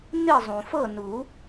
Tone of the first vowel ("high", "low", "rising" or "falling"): falling